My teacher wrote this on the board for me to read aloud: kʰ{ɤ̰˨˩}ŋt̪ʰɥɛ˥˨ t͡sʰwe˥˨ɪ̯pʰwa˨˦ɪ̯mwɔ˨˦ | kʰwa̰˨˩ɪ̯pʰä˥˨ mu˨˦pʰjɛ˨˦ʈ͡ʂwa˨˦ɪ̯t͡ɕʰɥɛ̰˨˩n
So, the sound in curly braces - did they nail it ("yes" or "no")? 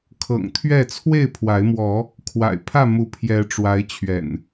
yes